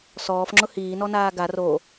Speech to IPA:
s ɔː f ŋ͡ǁ ʊ h iː n ɔ n aː ɡ a r o

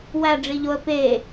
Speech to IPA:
w æ ɖ͡ʐ i ʎ o ə̯ p e

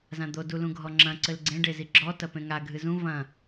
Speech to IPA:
z ã d̪ o d u l ũ ɡʱ ɔ ŋ͡ǁ ɐ̃ ǀ ɘ l ɡ͡ǀ ẽ ɖ e z i ɡ͡ǁ ɔ t ɐ p ẽ ŋ a ɡʱ ɨ z ũ v ɐ̃

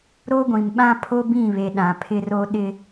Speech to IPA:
ɾ o˦ ɡʷ ĩ˨ m ɓ ã˦ pʰ o˦ b ĩ˦˨ β e˨ ɗ ã˨ pʰ ɪ˦ r o˦ ɗ ɪ˦

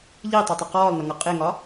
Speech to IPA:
ʎ i tˤ ʊ tˤ ə q ɔː lˠ n ʌ ŋ ʌ qʼ ɪ ŋ ɒ

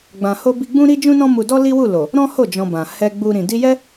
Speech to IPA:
ɡ͡b ã˧ h o˦ b i˦ ɡ͡b ũ˦ ɾ i˦ d͡ʒ ũ˦ n ɔ̃˦ m u˧ d ɔ˦ l i˦ w u˦˨ l o˨ | ɾ ɔ̃˦ h o˦˨ d͡ʒ ɔ̃˧ b ã˨ h ɛ˧ ɡ͡b u˧ ɾ ĩ˨ d i˧ j ɛ˦

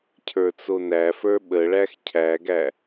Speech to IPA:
cʰ ə˞ t͡s o n æ f ə˞ ɓ ə ɭ æ x cʰ æ ɡ æ

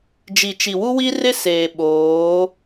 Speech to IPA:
d͡ʒ i˨ t͡ʃ i˨ w u˦ w i˦ r ɪ˦ s eː˨ ɓ oː˨˦

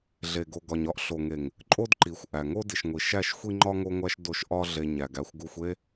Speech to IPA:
ɮ e˨ ɡ o˨ ɡ ɒ˨ ɲ ɒ˦ ʔ ɬ o˨ ŋ e˨ ŋ | ǃʼ o˦ d ǃ i˨˦ xʷ ʔ æ˨ ŋ o˦ d i˨ ʃ ŋʷ i˨ ʃ æ˦˨ ʃ xʷ i˦ ŋ͡ǃ ɒ˦ ŋ o˦ ŋʷ æ˦ ʃ d o˦˨ ʃ ʔ ɒ˦ ɮ e˦ ɲ æ˨ ɡ æ˦ xʷ ɡ u˦ xʷ e˦

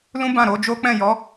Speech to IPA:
l ũ˦ b ã˦˨ ɾ o˨˦ d͡ʒ o˦ k͡p ɛ̃˦˨ j ɔ˨˦

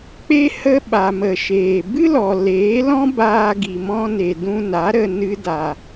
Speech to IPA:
k͡p e˧ h ə˧ ɓ a˨ m ə˨ ʃ eː˨ b ɨ˦ l ɔ˨ l eː˨˦ l ɔ̃˦ b aː˧ ɡ i˨ m ɔ̃˧ n e˨ d ũ˧ n a˨˦ ɾ ə˧ n ɨ˦ d a˧

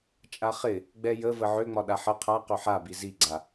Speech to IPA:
t͡ʃʼ a χ ɪ | ɡ͡b ɛ j ə v ə ʕ ø ŋ͡m ɒ ɗ a ħ ə qʰ a q ø ħ a b i z i ɡ͡ǀ a

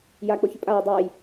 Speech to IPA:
j a k͡p o ç ʏ pʼ a w ə dˤ a j

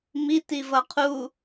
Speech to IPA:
m i t i v ʌ qʰ u

